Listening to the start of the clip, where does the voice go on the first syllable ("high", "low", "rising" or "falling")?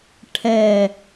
low